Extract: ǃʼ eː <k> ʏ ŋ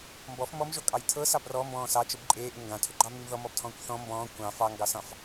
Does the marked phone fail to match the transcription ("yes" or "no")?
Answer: yes